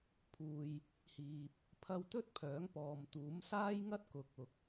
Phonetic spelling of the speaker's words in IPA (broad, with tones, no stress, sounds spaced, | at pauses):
pʰ uː˨ j | h iː˨ p̚ | pʰ ɐ˧ w t̪ ɵ˥ t̚ pʰ œː˨˥ ŋ p ɔː˨ m t̪ uː˨˥ m s aː˥ j ŋ ɐ˥ t̚ k ʊ˨ k̚ ʊ˨ k̚